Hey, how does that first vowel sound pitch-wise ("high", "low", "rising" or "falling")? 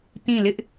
falling